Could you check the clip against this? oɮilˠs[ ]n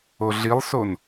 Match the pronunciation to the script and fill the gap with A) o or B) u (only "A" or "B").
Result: A